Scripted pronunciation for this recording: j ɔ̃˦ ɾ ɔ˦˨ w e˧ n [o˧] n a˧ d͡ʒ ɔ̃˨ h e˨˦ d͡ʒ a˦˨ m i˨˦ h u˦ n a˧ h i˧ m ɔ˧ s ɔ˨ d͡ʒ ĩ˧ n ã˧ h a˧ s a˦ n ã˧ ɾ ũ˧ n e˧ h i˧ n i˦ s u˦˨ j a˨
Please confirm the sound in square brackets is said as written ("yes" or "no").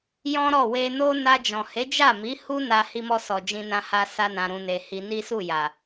no